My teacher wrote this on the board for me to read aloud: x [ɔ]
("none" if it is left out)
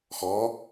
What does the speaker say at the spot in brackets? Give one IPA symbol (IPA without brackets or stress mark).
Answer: ɔ